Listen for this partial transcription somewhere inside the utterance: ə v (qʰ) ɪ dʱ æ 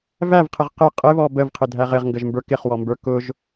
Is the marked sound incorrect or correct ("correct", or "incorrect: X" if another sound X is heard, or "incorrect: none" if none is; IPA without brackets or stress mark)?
correct